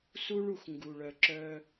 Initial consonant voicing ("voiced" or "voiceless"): voiceless